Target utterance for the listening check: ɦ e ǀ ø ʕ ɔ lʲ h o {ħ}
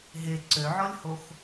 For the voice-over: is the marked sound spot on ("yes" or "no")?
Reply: no